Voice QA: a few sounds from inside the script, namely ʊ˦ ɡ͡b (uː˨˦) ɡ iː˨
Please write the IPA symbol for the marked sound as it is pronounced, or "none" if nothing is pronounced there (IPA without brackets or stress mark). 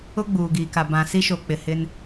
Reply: uː˨